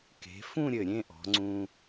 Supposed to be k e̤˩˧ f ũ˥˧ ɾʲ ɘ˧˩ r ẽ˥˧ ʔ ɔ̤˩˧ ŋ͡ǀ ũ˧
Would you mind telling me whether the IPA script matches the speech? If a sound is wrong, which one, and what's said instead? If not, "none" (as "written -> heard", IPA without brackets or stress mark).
r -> ɾʲ